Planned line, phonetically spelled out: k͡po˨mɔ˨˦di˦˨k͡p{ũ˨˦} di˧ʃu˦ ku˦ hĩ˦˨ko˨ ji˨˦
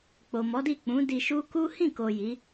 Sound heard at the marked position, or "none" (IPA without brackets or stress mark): ũ˨˦